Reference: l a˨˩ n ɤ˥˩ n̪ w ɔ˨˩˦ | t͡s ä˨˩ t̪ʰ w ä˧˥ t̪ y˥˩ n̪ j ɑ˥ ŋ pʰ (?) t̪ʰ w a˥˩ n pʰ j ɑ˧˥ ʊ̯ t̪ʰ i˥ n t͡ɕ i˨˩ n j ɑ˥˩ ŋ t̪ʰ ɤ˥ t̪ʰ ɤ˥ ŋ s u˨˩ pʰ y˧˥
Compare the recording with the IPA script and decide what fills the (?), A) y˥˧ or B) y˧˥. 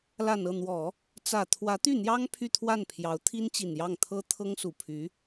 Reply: A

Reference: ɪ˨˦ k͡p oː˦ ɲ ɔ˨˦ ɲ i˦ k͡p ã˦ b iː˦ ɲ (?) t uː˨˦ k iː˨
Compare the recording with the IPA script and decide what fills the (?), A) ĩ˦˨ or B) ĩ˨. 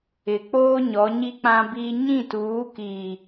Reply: A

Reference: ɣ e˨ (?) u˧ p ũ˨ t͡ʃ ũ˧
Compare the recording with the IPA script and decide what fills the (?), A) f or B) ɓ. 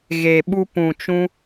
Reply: B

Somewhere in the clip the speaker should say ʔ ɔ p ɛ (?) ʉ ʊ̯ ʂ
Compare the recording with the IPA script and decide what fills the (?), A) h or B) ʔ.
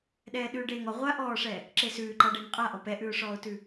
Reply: B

